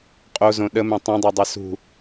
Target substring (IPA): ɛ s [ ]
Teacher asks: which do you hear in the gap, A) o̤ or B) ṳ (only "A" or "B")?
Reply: B